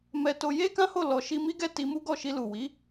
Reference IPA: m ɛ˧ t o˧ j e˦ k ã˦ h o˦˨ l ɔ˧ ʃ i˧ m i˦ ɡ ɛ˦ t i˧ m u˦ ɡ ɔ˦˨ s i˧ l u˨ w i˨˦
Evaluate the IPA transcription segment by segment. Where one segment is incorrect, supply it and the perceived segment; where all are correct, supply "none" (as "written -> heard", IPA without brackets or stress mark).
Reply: s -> ʃ